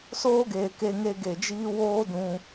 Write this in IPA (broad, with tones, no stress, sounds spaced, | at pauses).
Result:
s oː˦ ɡ eː˨ k e˧ ŋ e˧ ɡ e˨ d͡ʒ iː˦ w oː˦ d ũ˧